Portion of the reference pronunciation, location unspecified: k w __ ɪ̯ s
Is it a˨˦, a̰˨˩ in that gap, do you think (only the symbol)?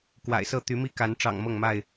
a̰˨˩